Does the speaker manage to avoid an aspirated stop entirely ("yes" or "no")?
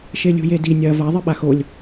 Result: yes